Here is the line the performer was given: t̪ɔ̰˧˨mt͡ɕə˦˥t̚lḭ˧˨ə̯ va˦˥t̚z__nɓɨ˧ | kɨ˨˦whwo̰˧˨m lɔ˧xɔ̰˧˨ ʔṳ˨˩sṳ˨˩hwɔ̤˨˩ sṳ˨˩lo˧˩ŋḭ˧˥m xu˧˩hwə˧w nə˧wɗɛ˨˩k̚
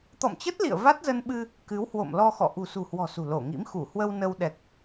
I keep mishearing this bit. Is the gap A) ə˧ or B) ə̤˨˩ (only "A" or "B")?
A